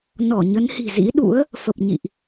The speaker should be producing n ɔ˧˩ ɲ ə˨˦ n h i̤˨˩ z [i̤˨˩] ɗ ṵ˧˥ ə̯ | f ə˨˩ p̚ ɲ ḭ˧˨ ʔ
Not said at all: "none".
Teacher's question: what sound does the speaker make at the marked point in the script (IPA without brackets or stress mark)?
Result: ḭ˧˥